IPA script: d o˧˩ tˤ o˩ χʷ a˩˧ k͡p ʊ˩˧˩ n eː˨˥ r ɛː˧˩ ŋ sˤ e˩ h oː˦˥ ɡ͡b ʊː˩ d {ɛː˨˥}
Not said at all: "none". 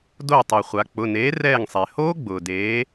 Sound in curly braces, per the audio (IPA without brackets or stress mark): eː˨˥